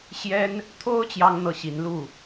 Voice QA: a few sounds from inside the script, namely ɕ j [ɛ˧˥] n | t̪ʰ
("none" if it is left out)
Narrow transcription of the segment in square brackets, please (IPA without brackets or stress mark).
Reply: ɛ˥